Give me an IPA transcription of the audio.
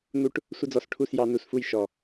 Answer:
n̪ u˦ ʈ | sʷ ə˦ d͡z ɔ˧ s ʈʰ u˦˨ s j ɑ˧ n u˧ s f u˦˨ j ʃ ɔ˨

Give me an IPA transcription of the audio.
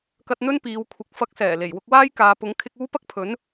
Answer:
k ɐ˧ t̚ n̪ ɵ˥ n p iː˨˧ w kʷʰ ɪ˨˥ k̚ f ɐ˨˥ k̚ s ɛː˨˩ l e˨˩ j w ʊ˧ k̚ w aː˥ j k aː˨˧ p ʊ˨˥ ŋ kʰ ɪ˧ k̚ uː˥ p ɐ˥ k̚ pʰ ɵ˨˥ n

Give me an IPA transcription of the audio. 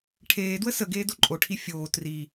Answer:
ʈʰ eː d w ə s ə ɡ eː d o ǃʼ o ʈʰ i fʲ oː t r i

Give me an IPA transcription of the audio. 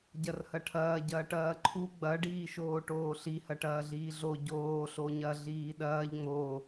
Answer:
ɟ ɐ r h ɐ ʈʰ ɐː ɟ ɐː ʈ ɐː ǃʰ u ɡ͡b ɐ ɖ iː ʃ oː ʈ oː ɬ i h ɐ ʈ ɐː ɮ iː ɮ o ɟ oː ɬ o ɲ ɐ ɮ iː ɗ ɐː ʎ ŋ͡m o

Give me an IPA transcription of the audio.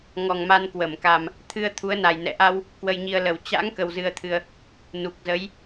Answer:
ŋ ɔ˨˩ ŋ m a˧ n k w ə˧˩ m k a˨˩ m | t̪ʰ ɨ˧ ə̯ t̪ʰ u˨˦ ə̯ n a˨˩ j n ɛ̰˧˨ ʔ a˧ w | k w ə˧ j ɲ i˧ ə̯ l ə˨˩ w t͡ɕ a̰˧˥ ŋ k ə˧ w z ɨ˧ ə̯ t̪ʰ ɨ˧ ə̯ | n u˨˩ k̚ z ə˨˦ j

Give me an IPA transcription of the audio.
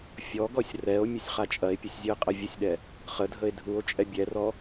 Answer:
fʲ ɔ ɡ ɔ sʲ r ɛ o̯ mʲ ə sʲ χ a t͡ʃʼ ɐ e̯ pʲ u sʲ zʲ u e̯ qʼ ɐ vʲ ə sʲ ɗ ɛ | χ ə dʱ ə e̯ dʱ u o̯ t͡ʃʼ ɛ bʲ ɛ r ɔ

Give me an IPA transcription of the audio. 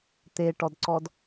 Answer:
t̪ e ʈ ɔ d ǀ ɔ d

